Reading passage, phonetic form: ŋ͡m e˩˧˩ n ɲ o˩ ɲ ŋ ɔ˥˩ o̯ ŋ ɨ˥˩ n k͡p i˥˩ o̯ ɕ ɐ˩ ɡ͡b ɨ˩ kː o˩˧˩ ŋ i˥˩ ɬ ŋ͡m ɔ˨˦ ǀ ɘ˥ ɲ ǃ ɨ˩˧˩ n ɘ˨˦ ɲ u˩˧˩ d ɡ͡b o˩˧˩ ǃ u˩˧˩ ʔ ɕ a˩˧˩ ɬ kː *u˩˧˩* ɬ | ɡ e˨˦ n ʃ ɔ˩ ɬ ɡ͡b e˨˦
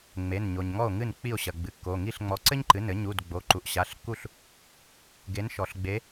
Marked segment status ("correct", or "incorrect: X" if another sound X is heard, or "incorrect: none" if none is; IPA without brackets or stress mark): incorrect: u˥˩